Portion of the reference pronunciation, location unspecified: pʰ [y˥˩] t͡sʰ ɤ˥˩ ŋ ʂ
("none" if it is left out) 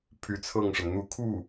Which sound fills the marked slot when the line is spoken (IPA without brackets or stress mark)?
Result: y˧˥